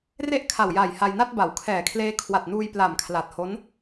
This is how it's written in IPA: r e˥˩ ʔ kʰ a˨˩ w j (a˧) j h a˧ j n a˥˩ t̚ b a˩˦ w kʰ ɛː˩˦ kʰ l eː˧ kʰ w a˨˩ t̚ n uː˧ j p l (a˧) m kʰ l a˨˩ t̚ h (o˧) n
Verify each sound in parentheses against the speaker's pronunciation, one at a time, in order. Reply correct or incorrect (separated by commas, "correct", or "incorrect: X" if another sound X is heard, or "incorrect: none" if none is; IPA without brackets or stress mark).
incorrect: a˨˩, incorrect: a˨˩, incorrect: o˦˥